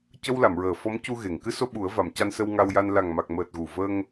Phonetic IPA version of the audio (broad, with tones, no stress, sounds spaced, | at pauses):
c ə˧ w l a˨˩˨ m ɹ əː˨˩˨ f ɔ˧˥ m c u˧ ɣ e˨˩˨ ŋ k ɨ˧ s o˧ ɓ u˨˩˦ ə̯ v a˨˩˨ m c a˧ n s ə˧ w ŋ a˧ w j a˧ n l a˨˩ ŋ m a˨˩ k̚ m əː˨˩ t̚ ɣ u˨˩ v ə˧ ŋ